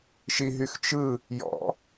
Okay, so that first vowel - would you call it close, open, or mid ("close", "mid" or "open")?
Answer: close